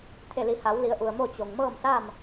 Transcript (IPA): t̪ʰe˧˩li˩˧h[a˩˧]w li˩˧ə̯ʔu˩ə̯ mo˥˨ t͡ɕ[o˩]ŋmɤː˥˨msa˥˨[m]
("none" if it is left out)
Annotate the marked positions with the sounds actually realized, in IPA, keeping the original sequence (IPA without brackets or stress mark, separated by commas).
a˩˧, o˩, m